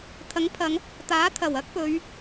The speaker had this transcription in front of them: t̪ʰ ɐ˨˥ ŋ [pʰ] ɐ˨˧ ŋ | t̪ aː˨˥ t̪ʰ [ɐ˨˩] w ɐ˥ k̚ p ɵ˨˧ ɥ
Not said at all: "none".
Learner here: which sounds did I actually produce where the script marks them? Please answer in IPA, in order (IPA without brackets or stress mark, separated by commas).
pʰ, ɐ˨˩